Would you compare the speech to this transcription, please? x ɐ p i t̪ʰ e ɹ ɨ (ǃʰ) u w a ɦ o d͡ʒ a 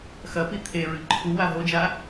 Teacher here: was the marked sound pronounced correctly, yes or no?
yes